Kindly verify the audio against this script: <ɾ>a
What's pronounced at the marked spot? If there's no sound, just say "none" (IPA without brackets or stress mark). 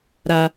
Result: ɾ